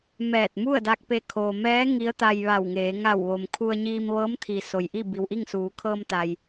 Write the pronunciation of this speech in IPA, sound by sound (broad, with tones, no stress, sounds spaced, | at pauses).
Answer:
m ɛː˧˩ t̚ m u˥˨ ə̯ d a˧ k̚ p e˧˩ kʰ oː˩ m ɛː˧˥ ŋ i˧˥ ə̯ t̪ a˧ j ʋ a˧˩ w ŋ eː˩˧ ŋ a˧˩ w ʋ o˩ m kʰ u˧ ə̯ ɲ iː˧ m ʋ ɤː˧˥ m t̪ʰ i˩ s o˩ j ʔ i˥˨ b i˩ w ʔ i˥˨ ŋ s uː˩˧ kʰ ɤː˧ m t̪ a˩ j